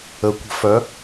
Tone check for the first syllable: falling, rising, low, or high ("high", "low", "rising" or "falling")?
rising